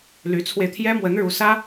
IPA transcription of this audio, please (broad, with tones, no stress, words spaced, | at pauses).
ly˧˥t͡sʰwe˧ɪ̯t̪ʰjɛ˥ mwə˧˥n ɻu˧˥sä˥